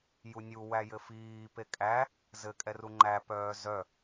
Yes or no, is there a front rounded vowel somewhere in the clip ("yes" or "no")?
yes